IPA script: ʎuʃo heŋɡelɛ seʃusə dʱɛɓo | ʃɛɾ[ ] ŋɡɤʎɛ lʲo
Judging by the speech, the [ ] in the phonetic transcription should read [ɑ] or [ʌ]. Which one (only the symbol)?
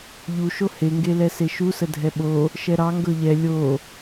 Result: ɑ